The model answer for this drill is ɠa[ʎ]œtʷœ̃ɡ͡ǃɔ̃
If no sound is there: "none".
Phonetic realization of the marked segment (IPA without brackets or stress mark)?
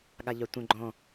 ʎ